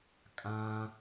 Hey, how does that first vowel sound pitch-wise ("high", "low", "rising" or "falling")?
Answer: high